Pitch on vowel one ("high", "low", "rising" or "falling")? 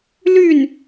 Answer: falling